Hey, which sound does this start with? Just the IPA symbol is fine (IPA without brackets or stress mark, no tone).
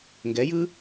ŋ